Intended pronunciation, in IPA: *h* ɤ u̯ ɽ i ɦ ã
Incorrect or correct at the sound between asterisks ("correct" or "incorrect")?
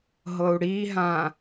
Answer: incorrect